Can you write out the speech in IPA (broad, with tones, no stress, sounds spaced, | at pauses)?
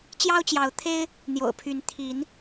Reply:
t͡ɕ j ɑ˦ ʊ̯ t͡ɕ j ɑ˨˦ ʊ̯ t̪ʰ e˦ ɪ̯ | n̪ j o̰˨˩ ʊ̯ pʰ y˨˦ n t̪ʰ i˨˦ n